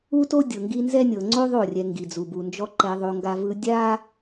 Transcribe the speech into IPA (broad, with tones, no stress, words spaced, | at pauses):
u˦to˦ dʲɤ˨ŋɡi˦ nzɛ˦nʲɤ˨ ŋ͡ǀo˦ ðˤo˦˨rʲɛ˨ ŋɡi˨d͡zu˨bu˨nd͡ʒɔ˦ ǃɛ˨ðˤo˨ŋɡa˨vɯ˨ dʲa˦